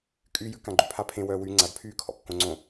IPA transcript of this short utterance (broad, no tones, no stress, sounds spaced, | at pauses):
kʼ y j ʉ k ã ɡ͡ǃ ʉ pʰ a pʰ ẽ w œː w y ŋ͡ǀ a d pʰ yː kʰ ɔ̰ kː õ ŋ͡ǀ õ